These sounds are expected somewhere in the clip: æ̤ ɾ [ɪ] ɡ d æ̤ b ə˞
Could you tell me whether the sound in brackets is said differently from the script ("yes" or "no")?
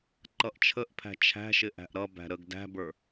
yes